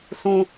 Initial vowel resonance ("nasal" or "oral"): nasal